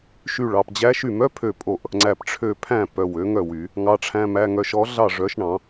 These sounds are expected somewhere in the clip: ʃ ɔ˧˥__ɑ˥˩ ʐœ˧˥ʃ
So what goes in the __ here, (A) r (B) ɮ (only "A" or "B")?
B